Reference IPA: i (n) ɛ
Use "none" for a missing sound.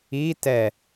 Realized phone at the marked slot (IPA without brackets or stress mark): t